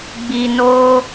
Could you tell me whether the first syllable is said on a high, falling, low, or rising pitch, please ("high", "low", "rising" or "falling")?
low